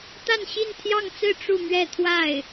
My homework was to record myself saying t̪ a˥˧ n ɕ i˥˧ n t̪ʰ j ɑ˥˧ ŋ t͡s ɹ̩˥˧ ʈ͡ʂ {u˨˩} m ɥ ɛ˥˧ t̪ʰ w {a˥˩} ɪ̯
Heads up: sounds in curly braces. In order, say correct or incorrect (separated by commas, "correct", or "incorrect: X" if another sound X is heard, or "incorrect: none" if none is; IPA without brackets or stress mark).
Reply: incorrect: u˥˧, correct